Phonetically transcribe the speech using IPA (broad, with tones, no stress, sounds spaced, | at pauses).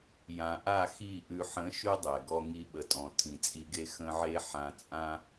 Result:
j ã˨ ʔ a˦˨ x i˦˨ ʔ ʉ˨ ħ ə̃˨˦ ʃ ʉ˦ dˤ ɛ˨ ɡ ɔ˧ ŋ i˧ ɓ ə˨ tʼ ɔ̃˨ tʰ ĩ˨ t͡sʼ i˧ ɡ e˦ x ə̃˦ ʕ e˦ ħ ã˧ t͡sʼ ã˦